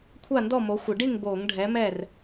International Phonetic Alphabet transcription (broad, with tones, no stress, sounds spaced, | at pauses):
kʷʰ a˥˨ n d ɔ˥˨ m o˨˥ xʷ ɪ˧˩˧ ɖ i˥˨ ŋ b oː˧˩˧ ŋ ɖʱ ɛ˨˥ m ɛː˥˨ r